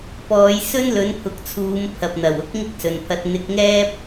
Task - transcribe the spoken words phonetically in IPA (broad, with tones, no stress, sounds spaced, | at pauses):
p ɔː˨˧ j s ɵ˥ n l ɵ˨˥ n pʰ ʊ˨ k̚ t͡sʰ uː˨˧ m pʰ ɐ˨ p̚ n̪ ɐ˨˩ w ʊ˥ k̚ ŋ ɪ˥ k̚ s ɵ˨ n pʰ ɐ˧ t̚ n̪ ɪ˧ k̚ ŋ ɛː˥ p̚